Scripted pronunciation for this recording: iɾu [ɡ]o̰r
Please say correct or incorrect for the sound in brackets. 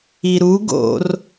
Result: correct